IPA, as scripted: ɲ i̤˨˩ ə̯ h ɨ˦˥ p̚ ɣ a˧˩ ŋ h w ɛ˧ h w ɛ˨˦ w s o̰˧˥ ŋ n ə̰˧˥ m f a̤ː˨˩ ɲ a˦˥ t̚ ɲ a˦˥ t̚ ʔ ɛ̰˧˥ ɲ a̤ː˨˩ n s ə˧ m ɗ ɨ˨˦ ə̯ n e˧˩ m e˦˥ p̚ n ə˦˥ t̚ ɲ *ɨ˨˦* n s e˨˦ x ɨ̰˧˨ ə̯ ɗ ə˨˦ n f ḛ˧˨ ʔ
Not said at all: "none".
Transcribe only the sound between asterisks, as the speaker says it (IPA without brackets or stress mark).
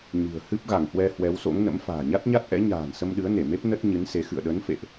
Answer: ɨ˨˦